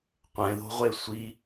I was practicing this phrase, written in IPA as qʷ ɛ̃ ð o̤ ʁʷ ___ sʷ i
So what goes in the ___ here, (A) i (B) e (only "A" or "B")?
B